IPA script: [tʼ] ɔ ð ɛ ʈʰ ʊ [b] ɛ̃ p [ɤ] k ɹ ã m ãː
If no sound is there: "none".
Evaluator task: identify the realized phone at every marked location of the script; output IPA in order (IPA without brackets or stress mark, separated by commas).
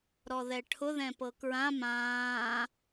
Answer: ɾ, ð, ɤ